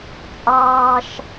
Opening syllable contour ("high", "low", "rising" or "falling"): high